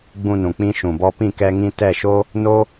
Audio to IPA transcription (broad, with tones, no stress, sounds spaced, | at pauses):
ɡ͡b ũ˧ n ũ˨ k͡p ĩ˧ ʃ ũ˨ b ɔ˧ p ĩ˦˨ k ɛ˧ ŋ ĩ˧ t ɛ˦˨ ʃ o˦ | n o˦